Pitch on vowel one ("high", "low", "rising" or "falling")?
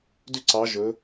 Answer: falling